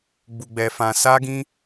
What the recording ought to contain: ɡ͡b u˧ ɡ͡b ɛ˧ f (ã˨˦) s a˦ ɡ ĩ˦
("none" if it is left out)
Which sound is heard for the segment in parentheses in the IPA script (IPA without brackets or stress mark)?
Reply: ã˧